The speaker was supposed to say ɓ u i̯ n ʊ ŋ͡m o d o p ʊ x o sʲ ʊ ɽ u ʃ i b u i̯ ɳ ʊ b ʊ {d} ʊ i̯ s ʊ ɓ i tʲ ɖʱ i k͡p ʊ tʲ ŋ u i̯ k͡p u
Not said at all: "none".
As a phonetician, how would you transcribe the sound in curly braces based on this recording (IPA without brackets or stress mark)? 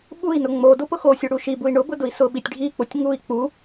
d